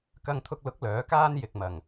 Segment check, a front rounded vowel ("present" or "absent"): present